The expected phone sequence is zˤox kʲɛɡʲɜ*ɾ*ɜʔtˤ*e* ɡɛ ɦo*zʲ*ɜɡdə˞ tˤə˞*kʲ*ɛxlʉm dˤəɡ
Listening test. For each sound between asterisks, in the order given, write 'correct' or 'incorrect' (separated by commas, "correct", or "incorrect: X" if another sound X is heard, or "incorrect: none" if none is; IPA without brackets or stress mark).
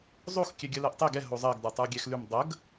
incorrect: l, correct, incorrect: zˤ, incorrect: ɡʲ